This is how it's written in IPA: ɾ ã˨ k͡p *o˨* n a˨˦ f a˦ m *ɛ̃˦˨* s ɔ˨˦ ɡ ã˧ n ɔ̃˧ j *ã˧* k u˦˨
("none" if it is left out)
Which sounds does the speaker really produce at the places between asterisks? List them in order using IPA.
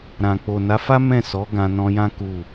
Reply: o˨, ɛ̃˦˨, ã˦

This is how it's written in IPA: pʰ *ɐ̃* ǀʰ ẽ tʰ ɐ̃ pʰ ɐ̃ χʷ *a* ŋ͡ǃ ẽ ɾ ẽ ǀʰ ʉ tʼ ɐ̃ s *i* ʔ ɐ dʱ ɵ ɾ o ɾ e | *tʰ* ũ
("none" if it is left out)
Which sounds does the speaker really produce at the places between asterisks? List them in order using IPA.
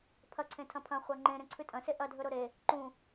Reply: ɐ, a, e, ǃ

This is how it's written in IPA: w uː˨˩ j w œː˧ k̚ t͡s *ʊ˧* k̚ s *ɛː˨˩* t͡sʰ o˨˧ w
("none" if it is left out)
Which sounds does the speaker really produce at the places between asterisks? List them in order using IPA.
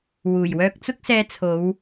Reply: ʊ˧, ɛː˨˧

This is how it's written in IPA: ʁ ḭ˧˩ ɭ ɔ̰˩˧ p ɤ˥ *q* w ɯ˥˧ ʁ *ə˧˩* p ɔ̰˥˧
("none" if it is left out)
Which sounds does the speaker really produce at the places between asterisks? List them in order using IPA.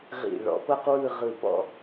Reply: q, ɯ˧˩

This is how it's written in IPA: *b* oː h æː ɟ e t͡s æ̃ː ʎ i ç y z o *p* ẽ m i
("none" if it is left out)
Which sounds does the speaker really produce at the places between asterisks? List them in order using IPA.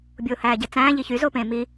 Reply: bʲ, p

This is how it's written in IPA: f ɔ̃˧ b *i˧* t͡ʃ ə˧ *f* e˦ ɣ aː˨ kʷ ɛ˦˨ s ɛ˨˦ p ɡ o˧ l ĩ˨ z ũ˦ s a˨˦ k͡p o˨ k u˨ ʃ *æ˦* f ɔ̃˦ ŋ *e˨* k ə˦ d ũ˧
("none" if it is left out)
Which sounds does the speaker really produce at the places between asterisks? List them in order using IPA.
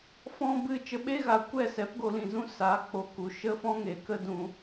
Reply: ɨ˧, ɓ, ə˦, e˨

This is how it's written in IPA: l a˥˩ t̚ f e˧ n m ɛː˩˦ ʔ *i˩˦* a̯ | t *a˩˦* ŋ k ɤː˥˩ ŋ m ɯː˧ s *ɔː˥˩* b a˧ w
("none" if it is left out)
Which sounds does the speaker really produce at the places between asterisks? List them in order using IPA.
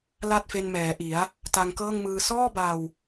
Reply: i˩˦, a˧, ɔː˥˩

